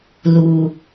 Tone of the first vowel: low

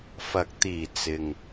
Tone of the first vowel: rising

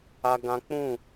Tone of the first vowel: high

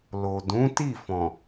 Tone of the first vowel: low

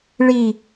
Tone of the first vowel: low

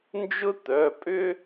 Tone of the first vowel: high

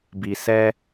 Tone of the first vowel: low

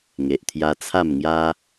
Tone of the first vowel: low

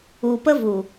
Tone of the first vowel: low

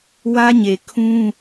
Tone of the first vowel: high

